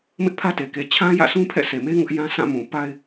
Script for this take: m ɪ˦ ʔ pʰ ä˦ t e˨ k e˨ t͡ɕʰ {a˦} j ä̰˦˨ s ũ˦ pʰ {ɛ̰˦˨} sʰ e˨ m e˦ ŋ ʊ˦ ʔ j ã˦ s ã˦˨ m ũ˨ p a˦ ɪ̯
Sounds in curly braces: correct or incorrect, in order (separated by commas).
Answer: incorrect, correct